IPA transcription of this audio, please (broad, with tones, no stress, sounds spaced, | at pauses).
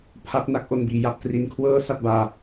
pʰ a˦˥ p̚ n a˦˥ k̚ ʔ o˧ n b iː˩˦ j a˥˩ p̚ t r i˧ n kʰ w ɤː˥˩ s a˥˩ t̚ b aː˧